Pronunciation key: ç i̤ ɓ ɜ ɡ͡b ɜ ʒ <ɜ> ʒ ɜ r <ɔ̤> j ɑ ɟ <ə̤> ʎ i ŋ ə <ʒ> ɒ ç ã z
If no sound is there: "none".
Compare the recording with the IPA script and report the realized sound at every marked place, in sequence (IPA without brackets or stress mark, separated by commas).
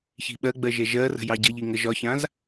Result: ɛ, ə̤, ə, ʒ